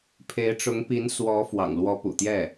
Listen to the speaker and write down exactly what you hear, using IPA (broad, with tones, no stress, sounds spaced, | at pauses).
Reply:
pʰ e˧˥ ɪ̯ ʈ͡ʂ ʊ˧˥ ŋ p i˧˥ n s w ɔ˧˥ f w ɑ̰˨˩ ŋ l w ɔ˧˥ p ṵ˨˩ t̪ j ɛ˥˩